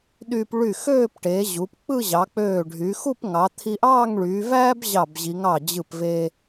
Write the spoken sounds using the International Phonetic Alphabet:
ɗyː˧p ɭy˧˩xøː˥˧pʈeː˩˧ʑu˩˧p k͡pɯ˥˧ʑɑ˩˧k͡pøː˧˩ ɖʱy˩˧ xu˥˧pŋɑ˩˧ t̪ʰi˧ʔɑː˥˧ŋɭyː˩˧ væː˥b ʑɑ˧˩bʑi˩˧ŋ ɑ˧˩ d͡ʑɯ˧˩pve˧

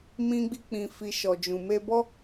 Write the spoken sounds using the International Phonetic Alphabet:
mĩ˧ɡ͡bi˧k͡pĩ˨fi˨ ʃɔ˨d͡ʒũ˨ me˧bɔ˦

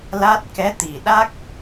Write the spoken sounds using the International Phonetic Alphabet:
la˦˥t̚ kɛ˧˥t̪i˨˩ ɗa˦˥k̚

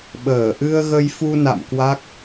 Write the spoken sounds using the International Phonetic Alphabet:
ɓəː˧˩ ʔɨ˧ə̯ɣə˧jfu˧na̰˧˨m kwa˦˥k̚

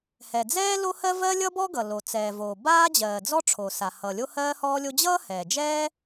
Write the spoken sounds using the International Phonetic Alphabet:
hɛ˩d͡zɛː˥ lo˥hɜ˥ vɜ˥lʲʌ˥bɔ˥ɡʌ˩ lo˩t͡sɛː˩voː˩ baː˥d͡ʑɜː˩d͡zɔ˥ ʈ͡ʂʰo˩sa˩ hʌ˩ lʲo˥hɜː˥hɔː˥lʲo˥ d͡ʑʌː˥hɛː˩d͡ʒɛː˥

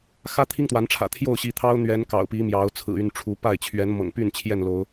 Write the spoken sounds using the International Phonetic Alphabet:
xä˦t̪ʰi˦ŋt̪wa˨˦nʈ͡ʂʰä̰˨˩ t̪ʰjo˥˨ʊ̯ɕi˨˦t̪ʰɑ˦ʊ̯n̪ɥɛ˨˦n kɑ̰˨˩ʊ̯pi˨˦ mjɑ˨˦ʊ̯ t͡sʰɹ̩˨˩y˥˨nʈ͡ʂʰu˨˦ pa˥˨ɪ̯ t͡ɕʰɥɛ˨˦nmɤ̰˨˩ŋpy˥˨n t͡ɕʰjɛ˥˨nlo˨˦ʊ̯

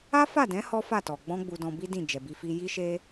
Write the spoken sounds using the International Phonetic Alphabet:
a˦fa˦˨dɛ̃˨˦ hɔ˦fa˦˨tɔ˨ ɡ͡bɔ̃˧ ɡ͡bu˧dɔ̃˧bi˦dĩ˦˨ d͡ʒɛ˨bi˧fi˧ ji˧ʃe˧

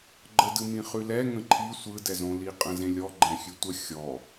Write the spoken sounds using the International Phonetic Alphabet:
ɡ͡ǃədɯ mĩχʉlɛ ŋə̃ǃʰi sʷɯdɛzõli qʼə̃zẽlʲɔ ɡ͡ǃɛ̃xʲʉtʷə xʲɔ

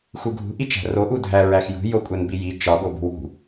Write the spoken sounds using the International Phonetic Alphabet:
xuɡʱṳ ʔit͡ʃæ̤ro ʔudʱæ ɹæxjṳ jokʷʼænbiji t͡ʃɒ ɡobṳwṳ

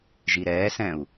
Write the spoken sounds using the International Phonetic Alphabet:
ʒiɾɛːsɛ̃u̯

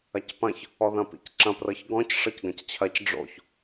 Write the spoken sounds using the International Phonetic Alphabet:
ɐcpɐ̃ç | ɔðɐ̃pḭcǁɐ̃ prɤçɡɔ̃c ʂɤcɡɐ̃ct͡ɕʰɐc ɖ͡ʐo̰ç

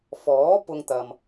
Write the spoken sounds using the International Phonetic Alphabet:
fɔː˨˥ pʊ˧ŋt̪ɐ˨m

